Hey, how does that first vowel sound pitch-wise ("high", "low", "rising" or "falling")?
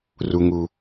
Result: low